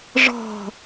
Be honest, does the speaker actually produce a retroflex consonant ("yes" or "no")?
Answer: yes